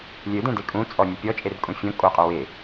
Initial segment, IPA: lʲ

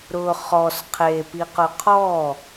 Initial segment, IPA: ɾ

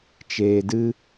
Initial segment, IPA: t͡ʃ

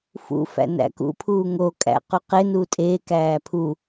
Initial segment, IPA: f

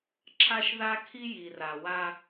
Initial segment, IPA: ǁʰ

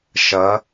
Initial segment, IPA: ʃ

